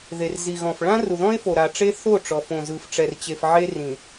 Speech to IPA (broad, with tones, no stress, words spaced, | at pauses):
ðe˨rzi˨ɣɔ̃˨f ɭã˦ru˨ðɔ̃˦e̯ fo˨ɾa˨ʈ͡ʂe˦ θo˦˨ʈ͡ʂɔ˨fõ˨zɯ˨f ʈ͡ʂɛ˨rt͡ɕe˨fʕe˦ rĩ˨